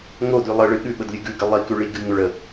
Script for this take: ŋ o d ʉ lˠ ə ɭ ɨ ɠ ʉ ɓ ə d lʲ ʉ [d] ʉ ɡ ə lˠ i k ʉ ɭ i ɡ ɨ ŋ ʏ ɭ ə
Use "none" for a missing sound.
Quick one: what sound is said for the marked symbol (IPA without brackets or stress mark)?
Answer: ɡ